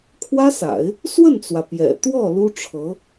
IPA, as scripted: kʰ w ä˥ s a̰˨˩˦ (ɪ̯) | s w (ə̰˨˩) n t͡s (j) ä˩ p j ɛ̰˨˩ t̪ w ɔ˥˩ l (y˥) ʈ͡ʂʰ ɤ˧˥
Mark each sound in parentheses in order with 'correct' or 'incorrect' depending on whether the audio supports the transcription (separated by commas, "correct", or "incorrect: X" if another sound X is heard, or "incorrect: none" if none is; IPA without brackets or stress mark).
correct, incorrect: ə˥˩, incorrect: w, incorrect: u˥